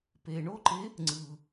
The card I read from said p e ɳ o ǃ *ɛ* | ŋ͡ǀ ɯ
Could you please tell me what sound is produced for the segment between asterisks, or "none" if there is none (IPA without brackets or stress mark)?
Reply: e